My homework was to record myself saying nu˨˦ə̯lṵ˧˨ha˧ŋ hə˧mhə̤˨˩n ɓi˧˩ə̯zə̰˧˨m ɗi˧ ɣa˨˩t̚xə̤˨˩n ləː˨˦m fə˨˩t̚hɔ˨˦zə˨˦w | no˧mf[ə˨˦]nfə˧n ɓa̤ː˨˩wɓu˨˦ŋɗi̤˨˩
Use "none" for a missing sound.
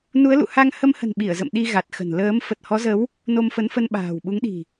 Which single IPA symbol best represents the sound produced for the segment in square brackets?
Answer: ə˨˦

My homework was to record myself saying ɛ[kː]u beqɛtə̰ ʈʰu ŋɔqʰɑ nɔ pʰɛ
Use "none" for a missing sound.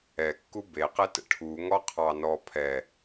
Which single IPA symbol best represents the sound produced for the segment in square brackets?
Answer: kː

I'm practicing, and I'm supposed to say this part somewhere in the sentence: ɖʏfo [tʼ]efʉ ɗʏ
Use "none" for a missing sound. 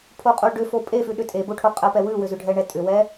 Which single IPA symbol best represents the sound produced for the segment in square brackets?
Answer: pʼ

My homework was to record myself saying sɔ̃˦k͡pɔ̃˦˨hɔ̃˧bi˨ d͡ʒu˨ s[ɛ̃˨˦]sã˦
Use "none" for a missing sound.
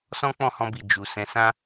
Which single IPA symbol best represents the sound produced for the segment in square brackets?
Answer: ɛ̃˨˦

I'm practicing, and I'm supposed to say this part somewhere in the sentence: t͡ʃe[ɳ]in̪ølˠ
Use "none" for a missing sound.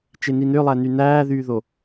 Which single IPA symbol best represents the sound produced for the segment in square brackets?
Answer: n̪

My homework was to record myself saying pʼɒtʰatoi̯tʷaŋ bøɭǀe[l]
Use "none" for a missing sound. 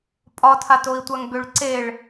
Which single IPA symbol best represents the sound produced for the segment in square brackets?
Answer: ɭ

